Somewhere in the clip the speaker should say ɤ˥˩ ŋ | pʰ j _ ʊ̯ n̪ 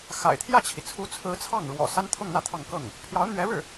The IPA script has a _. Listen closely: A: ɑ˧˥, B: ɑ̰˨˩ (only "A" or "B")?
A